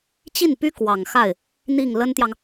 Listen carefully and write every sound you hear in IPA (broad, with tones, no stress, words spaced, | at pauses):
t͡ɕi˥˩npy˥ kwɑ˨˩ŋxa˥˩ɪ̯ | n̪i˥˩ŋ lə˥nt̪jɑ˨ŋ